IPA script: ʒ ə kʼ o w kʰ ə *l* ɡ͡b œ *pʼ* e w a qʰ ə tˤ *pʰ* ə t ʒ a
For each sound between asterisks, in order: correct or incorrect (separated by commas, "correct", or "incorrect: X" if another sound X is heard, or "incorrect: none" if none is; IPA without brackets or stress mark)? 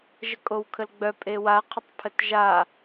correct, correct, correct